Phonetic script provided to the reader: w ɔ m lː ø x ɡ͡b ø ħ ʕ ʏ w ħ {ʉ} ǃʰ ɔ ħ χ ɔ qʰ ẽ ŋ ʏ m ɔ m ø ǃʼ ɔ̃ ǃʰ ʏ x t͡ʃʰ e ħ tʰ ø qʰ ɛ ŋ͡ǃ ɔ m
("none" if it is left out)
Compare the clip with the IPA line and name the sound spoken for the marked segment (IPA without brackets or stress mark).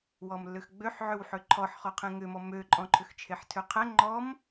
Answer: ø